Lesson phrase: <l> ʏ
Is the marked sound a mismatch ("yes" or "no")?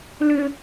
no